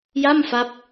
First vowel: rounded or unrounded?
unrounded